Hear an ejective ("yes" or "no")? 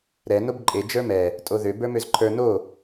yes